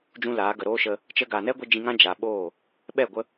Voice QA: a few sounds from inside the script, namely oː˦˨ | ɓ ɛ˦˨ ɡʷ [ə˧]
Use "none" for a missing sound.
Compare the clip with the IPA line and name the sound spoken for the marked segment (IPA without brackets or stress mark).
ə˧